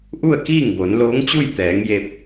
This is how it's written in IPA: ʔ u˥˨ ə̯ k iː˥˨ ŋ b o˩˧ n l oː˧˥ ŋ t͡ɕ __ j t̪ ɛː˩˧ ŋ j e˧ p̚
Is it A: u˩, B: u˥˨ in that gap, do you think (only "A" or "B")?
B